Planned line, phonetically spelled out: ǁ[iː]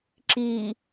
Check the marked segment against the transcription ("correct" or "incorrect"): correct